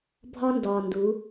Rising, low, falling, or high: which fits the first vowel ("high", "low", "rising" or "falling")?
high